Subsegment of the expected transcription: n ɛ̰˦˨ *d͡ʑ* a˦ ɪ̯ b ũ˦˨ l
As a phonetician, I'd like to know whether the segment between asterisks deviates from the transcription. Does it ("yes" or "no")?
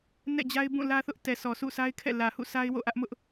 no